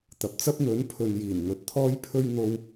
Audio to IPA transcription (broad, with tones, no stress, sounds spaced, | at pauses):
t̪ ɐ˨ p̚ t͡s ɐ˥ p̚ n̪ ɵ˨˥ n pʰ ɵ˨ n j iː˨˩ n ŋ ɵ˨ t̚ t̪ʰ ɔː˥ j pʰ ɵ˥ ɥ n̪ o˧ w